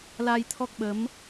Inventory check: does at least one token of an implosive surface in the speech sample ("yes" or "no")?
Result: yes